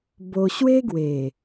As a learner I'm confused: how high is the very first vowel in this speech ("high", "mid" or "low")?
mid